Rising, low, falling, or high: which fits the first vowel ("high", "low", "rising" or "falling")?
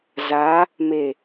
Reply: rising